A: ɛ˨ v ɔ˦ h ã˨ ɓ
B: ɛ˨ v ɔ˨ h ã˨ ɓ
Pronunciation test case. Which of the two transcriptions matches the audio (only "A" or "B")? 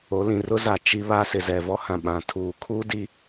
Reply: A